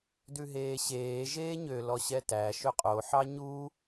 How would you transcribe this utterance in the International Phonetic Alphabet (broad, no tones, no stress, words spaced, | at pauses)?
dʉɦeːɕeː ʒeːɲø lɔɕɛtæ ʃɵqʼo ħɑɲu